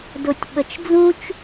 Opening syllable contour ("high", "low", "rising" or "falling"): low